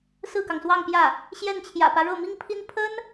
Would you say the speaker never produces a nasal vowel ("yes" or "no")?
yes